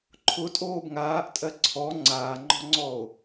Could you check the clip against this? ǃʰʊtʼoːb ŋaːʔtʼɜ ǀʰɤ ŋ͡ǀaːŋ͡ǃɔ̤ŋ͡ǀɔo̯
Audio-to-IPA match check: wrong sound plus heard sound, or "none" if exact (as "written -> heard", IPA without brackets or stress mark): ɤ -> ɔ